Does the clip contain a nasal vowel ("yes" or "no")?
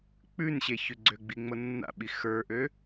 no